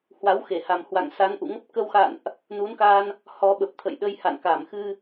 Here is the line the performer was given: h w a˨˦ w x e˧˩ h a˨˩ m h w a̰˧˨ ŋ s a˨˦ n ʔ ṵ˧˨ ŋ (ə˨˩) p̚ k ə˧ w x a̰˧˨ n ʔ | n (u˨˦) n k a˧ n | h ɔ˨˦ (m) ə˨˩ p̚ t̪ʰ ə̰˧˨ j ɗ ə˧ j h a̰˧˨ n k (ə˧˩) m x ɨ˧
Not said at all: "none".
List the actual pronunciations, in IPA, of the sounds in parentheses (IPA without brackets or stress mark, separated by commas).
ə˦˥, u˨˦, ɓ, a˧˩